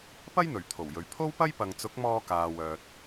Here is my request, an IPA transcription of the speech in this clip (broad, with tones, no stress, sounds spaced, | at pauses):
p ɐ˥ j n̪ ɵ˨˩ ɥ t̪ʰ o˨˩ w j ɵ˨ ɥ pʰ o˥ w p ɐ˥ j p ɐ˨ ŋ t͡s ʊ˨˥ k̚ m ɔː˧ k aː˨ w œː˨ t̚